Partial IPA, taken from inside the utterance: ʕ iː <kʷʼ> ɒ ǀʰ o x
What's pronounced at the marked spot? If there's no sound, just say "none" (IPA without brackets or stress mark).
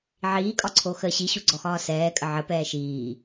kʼ